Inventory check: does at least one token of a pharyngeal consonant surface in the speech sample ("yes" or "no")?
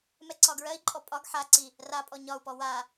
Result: yes